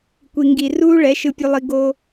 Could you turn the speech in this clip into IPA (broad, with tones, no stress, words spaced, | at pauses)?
kʷi˨ŋɡi˨ruː˦ ɭɛ˨˦ʃɯ˧pʲu˧lˠi˧ ɡo˧